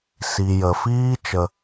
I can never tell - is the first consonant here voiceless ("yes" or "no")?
yes